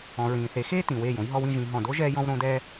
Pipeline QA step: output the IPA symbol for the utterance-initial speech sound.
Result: ɔ̃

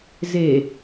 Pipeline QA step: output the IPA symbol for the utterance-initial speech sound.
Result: z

